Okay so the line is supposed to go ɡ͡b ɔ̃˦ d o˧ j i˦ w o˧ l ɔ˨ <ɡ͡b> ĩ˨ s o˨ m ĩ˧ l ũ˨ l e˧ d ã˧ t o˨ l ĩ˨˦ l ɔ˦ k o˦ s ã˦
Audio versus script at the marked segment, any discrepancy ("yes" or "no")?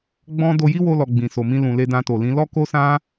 no